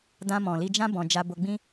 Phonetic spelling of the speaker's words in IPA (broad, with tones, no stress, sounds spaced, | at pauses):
d ã˧ m ɔ̃˨ l i˧ d͡ʒ ã˦ b ɔ̃˧ d͡ʒ a˧ b o˧ ɡ͡b ĩ˦